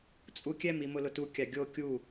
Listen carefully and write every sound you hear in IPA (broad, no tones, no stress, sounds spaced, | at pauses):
t͡sʼ u kʲ ɛ m i m ʊ l ʊ t u kʲ a ɡʲ o kʲ u